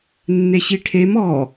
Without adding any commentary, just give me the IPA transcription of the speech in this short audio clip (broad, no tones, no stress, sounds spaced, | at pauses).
nː e ɕ i ʈʰ e m ɔ